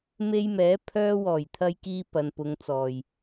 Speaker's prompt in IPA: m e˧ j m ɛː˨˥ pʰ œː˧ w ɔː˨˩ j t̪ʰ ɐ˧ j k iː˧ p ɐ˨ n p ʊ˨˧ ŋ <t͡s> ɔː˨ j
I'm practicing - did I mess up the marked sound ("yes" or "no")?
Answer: no